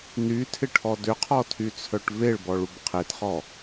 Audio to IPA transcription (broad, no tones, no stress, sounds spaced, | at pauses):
n y tʰ ɪ ʈʰ ɔ d ʏ qʰ ɔ tʰ y t͡sʰ œ ʈ v e ɭ b ɔ ɭ u b qʰ e t χ ɔ